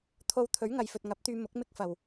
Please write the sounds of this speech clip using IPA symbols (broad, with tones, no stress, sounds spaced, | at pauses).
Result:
t̪ʰ o˧ w t̪ʰ ɵ˨˥ ɥ ŋ ɐ˨ j f ɵ˨ t̚ ŋ ɐ˨˥ p̚ t̪ yː˧ m ʊ˨˥ k̚ m ɪ˥ k̚ f ɐ˨ w